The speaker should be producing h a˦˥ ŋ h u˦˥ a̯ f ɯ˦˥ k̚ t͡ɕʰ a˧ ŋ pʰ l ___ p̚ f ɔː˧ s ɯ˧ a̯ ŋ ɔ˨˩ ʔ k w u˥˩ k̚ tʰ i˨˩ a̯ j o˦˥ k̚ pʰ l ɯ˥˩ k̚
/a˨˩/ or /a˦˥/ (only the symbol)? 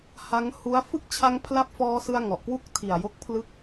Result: a˦˥